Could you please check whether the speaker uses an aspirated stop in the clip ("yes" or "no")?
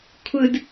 yes